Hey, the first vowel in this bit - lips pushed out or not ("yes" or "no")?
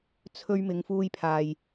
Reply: yes